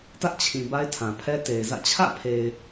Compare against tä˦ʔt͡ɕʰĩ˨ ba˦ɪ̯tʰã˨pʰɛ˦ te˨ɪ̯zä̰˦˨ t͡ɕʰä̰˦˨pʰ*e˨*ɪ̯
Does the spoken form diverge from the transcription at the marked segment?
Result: no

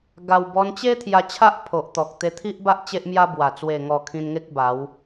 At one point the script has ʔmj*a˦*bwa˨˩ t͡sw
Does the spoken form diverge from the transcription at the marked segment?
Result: no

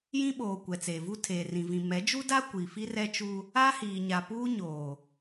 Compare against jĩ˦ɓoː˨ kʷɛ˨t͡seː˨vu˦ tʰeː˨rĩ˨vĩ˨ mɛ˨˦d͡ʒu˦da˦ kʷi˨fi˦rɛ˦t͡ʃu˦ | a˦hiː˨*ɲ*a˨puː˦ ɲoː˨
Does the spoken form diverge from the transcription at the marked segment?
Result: no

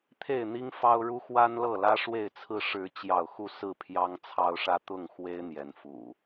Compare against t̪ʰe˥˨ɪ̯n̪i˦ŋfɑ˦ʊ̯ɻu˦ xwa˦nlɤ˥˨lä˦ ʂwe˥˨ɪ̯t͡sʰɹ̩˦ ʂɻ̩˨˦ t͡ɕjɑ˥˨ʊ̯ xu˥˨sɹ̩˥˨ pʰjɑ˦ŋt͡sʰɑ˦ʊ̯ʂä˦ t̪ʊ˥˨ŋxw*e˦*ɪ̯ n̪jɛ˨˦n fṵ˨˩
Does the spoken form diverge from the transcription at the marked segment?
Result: no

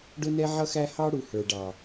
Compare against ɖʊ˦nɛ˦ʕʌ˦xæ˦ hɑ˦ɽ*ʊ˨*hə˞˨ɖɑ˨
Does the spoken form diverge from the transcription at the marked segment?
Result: yes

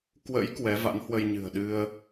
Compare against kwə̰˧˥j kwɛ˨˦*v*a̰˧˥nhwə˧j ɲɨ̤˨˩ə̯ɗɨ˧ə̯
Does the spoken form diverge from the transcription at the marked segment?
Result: no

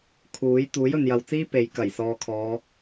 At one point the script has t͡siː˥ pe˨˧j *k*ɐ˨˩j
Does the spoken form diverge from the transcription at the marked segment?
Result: no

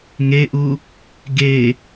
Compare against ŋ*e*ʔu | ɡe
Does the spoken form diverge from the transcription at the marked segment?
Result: no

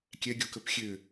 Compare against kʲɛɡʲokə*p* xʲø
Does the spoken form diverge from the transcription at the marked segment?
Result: no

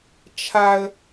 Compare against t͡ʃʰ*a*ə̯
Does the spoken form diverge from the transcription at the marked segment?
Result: no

